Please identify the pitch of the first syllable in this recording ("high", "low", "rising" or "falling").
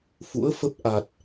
rising